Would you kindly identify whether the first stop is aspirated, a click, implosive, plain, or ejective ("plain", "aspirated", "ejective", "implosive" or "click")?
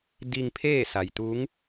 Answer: plain